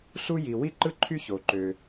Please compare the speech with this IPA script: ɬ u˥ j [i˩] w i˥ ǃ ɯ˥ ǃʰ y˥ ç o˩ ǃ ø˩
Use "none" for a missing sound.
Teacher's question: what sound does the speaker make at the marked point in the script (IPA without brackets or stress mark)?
i˩